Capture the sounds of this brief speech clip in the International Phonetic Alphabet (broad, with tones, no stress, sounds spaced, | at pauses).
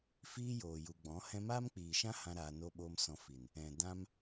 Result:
f iː˦ j oː˨ j u˨ ɡ͡b ɔ̃˨˦ h ɛ̃˦ m aː˦ m k͡p iː˨ ʃ ã˦ h ã˧ ɾ aː˧ n o˧ ɓ o˧ m s ɔ̃˧ f i˨ n | ɛ̃˨ d ã˦ m